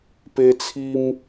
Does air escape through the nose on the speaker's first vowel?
no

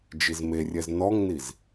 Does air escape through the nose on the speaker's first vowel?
no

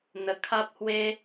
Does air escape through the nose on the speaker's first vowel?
no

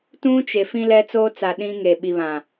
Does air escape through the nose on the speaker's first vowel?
yes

